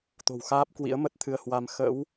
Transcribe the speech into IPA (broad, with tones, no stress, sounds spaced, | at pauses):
t̪ o̤˨˩ w x aː˦˥ p̚ k w ḭ˧˥ ə̯ m ə˦˥ t̚ t̪ʰ ɨ˧ ə̯ h w a˧ m x ə̰˧˥ w